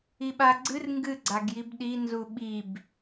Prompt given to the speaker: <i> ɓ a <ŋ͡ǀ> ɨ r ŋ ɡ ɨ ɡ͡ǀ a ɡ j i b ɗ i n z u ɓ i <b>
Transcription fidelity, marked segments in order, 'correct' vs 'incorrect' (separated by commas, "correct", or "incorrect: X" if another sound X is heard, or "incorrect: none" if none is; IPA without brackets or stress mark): correct, incorrect: ɡ͡ǀ, correct